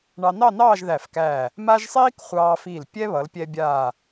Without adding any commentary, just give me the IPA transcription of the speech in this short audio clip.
ɳ ɑ˧ n ɑ˥˧ n ɑː˥˧ ʒ ð æ˧˩ f k æː˧˩ | m a˥ ʒ sˤ iː˥ k χʷ ɑː˧ f iː˧˩ l pʲ ɛ˥ β ʌ˩˧ l pʲ ɛ˧ bʲ aː˧˩

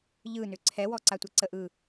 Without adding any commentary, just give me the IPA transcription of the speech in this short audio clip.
ʎ ɯ n ʏ ǀʰ ɛ w ɔ ǀ a tʷ e ǀ ə ʔ ɯ

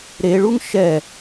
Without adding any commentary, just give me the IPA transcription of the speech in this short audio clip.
ɾ e ɭ u ŋ ʃ ɛ

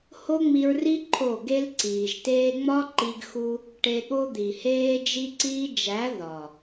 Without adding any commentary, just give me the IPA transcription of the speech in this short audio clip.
h o˦ ŋ͡m i˧ ɹ r i˦ ǃʰ o˦˨ ɡ e˦ l ǀ iː˨ ʒ t eː˧ ŋ͡m ɒ˦ ǃ i˧ ɡ x u˧ | ʈ e˧ ɠ o˦ d̪ i˨ h eː˧ d͡ʒ i˧ ǀ iː˧ d͡ʒ æ˨˦ ð ɒ˨

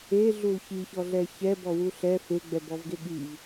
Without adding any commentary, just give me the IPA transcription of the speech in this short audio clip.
e ɮ u l ç i ç ɔ ɮ ɛ ç ɛ b ɔ w u ɬ ɛ f e ɡ͡b ɛ b ɔ v ɡ e ɠ i v

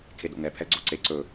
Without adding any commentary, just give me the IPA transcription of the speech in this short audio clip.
kʰ e d o̰ ŋ ɛ pʰ ɛ ɡ͡ǀ o ǀ e ǀ ɵ

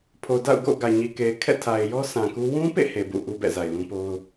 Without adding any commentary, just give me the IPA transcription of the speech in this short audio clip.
pʰ o˨ d a̰˦˨ ʊ̯ ɡ o̰˦˨ ɡ ä˨ ɲ i˨ k e˨ ɪ̯ kʰ ɛ̰˦˨ tʰ a˨ ɪ̯ j ɔ˦ s ã˨ k u˦ w ũ˦ p ḛ˦˨ h e˨ b ṵ˦˨ ʔ u˦ b ɛ̰˦˨ z a˨ ɪ̯ l ũ˦ p o˦ ʊ̯

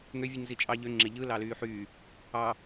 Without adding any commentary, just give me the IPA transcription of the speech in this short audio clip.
ŋ ø vʲ u ɲ z i t͡ʃʼ ɑ ʎ ø ŋ͡ǁ e ʎ ɯ l ɑ l yː ħ yː | ɑ

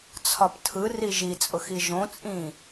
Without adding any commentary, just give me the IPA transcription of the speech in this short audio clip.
t͡sʰ ɒ p tʰ ɯ r i ʒ i t͡sʼ ʊ x i ʒ õ t͡sʼ ĩ

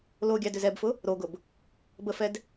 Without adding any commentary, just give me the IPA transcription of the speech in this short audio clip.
l o ɡʲ ɑ d ʏ z ɛ b f ʊ | ɾ o ɡ ʊ b | b ə f ɛ d

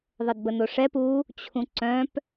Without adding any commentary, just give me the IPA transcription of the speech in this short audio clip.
ðˤ ə d b ə n o ʂ ɛ p u | t͡ɕʰ ũ ǀ œ̃ p

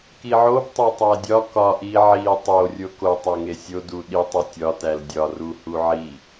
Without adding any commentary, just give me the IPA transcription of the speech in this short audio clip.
k i ʕ o b tˤ e tˤ æ dʲ ɒ k ɒ ʔ i ʕ i tˤ o rʲ o k o tˤ æ ŋ e sʲ o d u ɗ i tˤ u tʲ ɒ t æ l dʲ ɒ r u h u ʕ i

